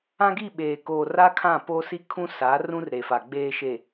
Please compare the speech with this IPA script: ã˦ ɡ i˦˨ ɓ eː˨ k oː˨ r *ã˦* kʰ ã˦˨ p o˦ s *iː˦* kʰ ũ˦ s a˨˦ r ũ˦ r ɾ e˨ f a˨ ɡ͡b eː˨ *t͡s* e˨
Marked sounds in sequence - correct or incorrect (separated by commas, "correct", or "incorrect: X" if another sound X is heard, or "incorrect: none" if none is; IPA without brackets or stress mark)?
incorrect: a˦, incorrect: i˦, incorrect: ʃ